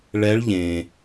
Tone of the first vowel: rising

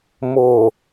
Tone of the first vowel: low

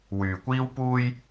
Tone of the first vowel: low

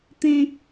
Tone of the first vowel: low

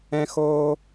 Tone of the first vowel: high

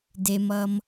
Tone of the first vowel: low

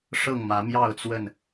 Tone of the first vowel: falling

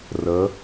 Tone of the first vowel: rising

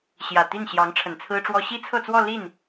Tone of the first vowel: low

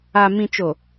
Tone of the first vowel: low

